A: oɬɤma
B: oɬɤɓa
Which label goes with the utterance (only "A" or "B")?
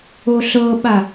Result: B